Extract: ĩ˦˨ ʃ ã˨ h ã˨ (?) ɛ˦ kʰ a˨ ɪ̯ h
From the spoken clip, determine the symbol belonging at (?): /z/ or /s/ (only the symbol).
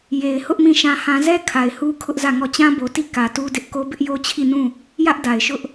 z